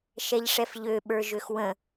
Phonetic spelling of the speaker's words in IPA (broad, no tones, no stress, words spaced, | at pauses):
ʃɛʎʂɛfʎø ɓə˞ʒøxwə̃